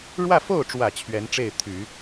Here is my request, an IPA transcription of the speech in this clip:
ɻ w ä˥˧ f o˥˩ ʊ̯ ʈ͡ʂ w ä˨˩ t͡ɕʰ ɥ ɛ˧˥ n ʈ͡ʂ e˥˩ ɪ̯ t̪ʰ y˨˩˦

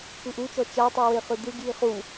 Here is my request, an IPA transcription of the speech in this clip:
p ɯ ʔ u t͡ʃ ɔ t͡ʃ a tˤ ɯ w e χ ɯ d̪ ɯ ɡ j i χ u

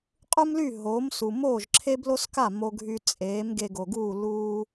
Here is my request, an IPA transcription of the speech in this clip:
qʼ u˥ m l y˥˩ ɦ oː˩˥ m s u˩ m oː˥˩ ʒ ǁʰ e˥ b l o˥ s k a˥˩ m o˧ ɡʱ y˧ t͡sʼ eː˩˥ m ɡ e˧ ɡ o˩ ɡ uː˥˩ l uː˥

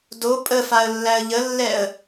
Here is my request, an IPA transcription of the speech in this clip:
d o pʼ ə f a ə̯ lː æ ə̯ ʎ ə lː ɛ ə̯

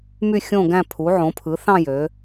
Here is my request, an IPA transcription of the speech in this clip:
m y˦˨ xʲ õ˦˨ ɡ æ̃˦˨ pʰ u˩˧ ʕ õ˩˧ pʰ ɯ˩˧ θ ɑ̃˦˨ j ø˩˧

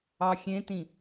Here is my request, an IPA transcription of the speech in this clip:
ɑ xʲ ẽ t ĩ

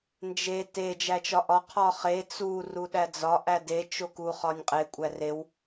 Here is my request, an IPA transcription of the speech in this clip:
n d͡ʒ e t e d͡ʒ æ t͡ʃ ɒ ʔ ɒ qʰ ɒ χ e t͡s u r u ɗ æ d͡z ɒ ʔ æ d e t͡ʃ o k u χ ɒ nʲ qʼ e kʷʼ æ r e w

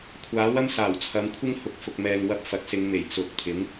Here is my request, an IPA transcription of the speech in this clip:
kʷʰ aː˨˥ w ɐ˥ m s aː˨˩ w t͡sʰ ɐ˨˧ m kʷʰ ɪ˥ ŋ h ʊ˨˥ k̚ f ʊ˨ k̚ m ɛː˨ ŋ w ɐ˧ p̚ f ɐ˨ t̚ s ɪ˨˧ ŋ m e˨˩ j t͡s ʊ˨˥ k̚ t̪ʰ ɪ˨˥ ŋ

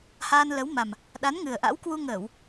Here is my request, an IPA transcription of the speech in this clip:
h aː˧ n l ə˨˦ w m a˨˩ m | ɗ a˨˦ n ŋ ɨ˨˩ ə̯ ʔ a̰˧˥ w k w u˧ ŋ əː˧˩˨ w

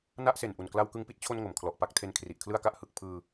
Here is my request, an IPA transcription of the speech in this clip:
n a˥˩ ʔ s e˨˩ n ʔ u˨˩ n k l a˧ w k ɯ˧ ŋ p i˦˥ t̚ t͡ɕʰ o˧ n ŋ o˩˦ m kʰ l ɔ˨˩ ʔ p a˥˩ k̚ tʰ e˧ n kʰ r i˨˩ ʔ kʰ l ɯ˥˩ a̯ k a˥˩ ʔ h ɯ˨˩ k̚ pʰ ɯː˧

